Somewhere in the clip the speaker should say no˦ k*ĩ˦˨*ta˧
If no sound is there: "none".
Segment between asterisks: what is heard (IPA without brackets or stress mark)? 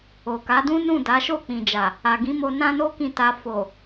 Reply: ĩ˦˨